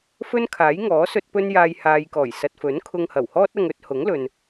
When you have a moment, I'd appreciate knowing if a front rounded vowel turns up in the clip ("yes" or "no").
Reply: no